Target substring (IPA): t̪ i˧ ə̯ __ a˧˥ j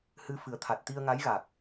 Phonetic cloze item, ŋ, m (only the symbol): ŋ